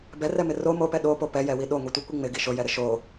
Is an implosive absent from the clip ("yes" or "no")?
no